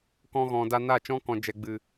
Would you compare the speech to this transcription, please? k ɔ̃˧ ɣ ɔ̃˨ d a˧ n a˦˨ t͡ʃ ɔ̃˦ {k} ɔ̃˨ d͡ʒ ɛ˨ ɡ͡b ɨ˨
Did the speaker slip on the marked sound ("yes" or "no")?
no